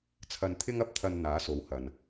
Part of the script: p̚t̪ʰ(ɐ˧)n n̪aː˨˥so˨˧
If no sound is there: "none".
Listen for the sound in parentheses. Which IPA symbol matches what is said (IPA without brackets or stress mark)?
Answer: ɐ˧